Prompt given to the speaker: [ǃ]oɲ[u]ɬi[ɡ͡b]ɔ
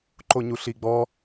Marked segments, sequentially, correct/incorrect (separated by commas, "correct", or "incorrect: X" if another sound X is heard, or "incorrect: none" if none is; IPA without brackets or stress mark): correct, correct, correct